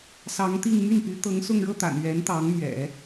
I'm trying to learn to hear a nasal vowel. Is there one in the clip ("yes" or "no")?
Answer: no